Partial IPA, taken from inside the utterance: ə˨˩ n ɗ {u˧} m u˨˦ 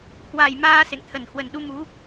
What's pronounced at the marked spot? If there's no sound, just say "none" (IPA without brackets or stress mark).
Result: u˧